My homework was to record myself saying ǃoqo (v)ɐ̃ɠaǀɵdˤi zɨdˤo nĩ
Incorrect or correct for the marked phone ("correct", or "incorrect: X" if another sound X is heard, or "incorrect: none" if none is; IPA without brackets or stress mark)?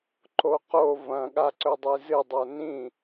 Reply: correct